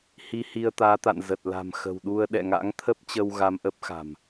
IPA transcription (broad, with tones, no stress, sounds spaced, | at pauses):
h i˧ h i˧ ə̯ t̪ aː˨˦ t̪ a̰˧˨ n z ə˨˩ t̚ l a̤˨˩ m x ə̤˨˩ w ɗ u˧ ə̯ ɗ ɛ̰˧˨ ŋ a̰˧˥ ŋ t̪ʰ ə˦˥ p̚ t͡ɕ ə˧ w ɣ a˧ m ʔ ə˦˥ p̚ x a̤˨˩ m